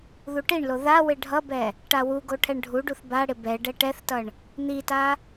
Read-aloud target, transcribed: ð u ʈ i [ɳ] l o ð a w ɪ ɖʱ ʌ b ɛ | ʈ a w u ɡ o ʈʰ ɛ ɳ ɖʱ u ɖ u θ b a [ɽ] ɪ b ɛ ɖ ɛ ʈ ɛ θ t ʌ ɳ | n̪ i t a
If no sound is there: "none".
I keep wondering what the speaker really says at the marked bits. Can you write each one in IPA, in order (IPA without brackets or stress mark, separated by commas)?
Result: ɳ, ɽ